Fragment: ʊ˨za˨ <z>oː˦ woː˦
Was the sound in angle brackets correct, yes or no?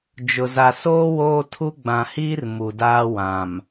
no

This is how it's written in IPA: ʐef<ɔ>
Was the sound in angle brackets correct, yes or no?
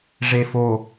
no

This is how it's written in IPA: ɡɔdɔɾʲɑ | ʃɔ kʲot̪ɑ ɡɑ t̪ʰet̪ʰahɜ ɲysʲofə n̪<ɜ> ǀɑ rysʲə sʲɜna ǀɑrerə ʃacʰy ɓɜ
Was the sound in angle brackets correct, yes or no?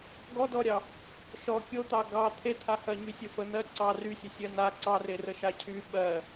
yes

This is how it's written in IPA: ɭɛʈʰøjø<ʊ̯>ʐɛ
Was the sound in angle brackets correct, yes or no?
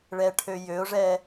yes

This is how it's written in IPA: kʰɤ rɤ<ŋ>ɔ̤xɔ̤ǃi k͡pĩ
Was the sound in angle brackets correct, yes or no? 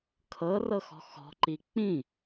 no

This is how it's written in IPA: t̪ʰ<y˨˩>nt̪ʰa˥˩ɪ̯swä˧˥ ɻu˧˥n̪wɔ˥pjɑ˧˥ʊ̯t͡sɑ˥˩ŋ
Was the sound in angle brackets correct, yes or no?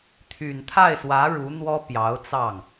yes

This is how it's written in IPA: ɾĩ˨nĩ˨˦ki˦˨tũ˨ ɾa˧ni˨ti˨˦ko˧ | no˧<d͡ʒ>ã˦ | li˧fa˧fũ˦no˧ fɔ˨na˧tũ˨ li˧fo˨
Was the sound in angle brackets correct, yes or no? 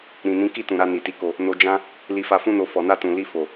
yes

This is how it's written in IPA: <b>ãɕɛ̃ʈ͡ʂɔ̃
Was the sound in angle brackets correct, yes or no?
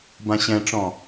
yes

